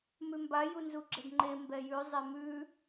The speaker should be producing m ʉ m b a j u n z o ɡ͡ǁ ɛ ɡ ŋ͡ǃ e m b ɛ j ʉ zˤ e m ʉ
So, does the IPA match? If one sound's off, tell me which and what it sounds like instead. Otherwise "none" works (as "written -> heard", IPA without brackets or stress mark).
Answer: o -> u